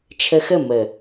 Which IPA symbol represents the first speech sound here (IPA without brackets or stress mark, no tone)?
t͡ʃʰ